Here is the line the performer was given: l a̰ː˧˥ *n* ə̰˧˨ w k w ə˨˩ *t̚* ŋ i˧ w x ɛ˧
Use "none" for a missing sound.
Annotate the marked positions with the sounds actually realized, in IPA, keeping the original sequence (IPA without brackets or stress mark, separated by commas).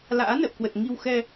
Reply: n, t̚